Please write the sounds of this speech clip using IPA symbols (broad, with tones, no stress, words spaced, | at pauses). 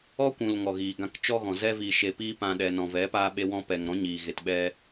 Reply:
ɔ˦kʷũ˨l ŋɔ˨ɣiː˨ɡã˧k t͡ʃɔ˧ɣɔ̃˨ zɛ˧ viː˨ʃe˨piː˧pã˨ ɗɛ˨nɔ̃˨vɛ˨˦paː˧ ɓe˧wɔ̃˧pɛ˨ŋɾɔ̃˨˦ ɲiː˨ɣe˨tɓɛ˧